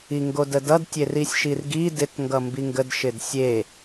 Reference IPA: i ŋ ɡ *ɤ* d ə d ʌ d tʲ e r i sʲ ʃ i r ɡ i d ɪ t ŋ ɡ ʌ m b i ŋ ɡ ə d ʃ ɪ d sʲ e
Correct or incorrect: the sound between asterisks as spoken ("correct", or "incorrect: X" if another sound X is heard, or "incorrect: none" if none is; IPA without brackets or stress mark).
incorrect: o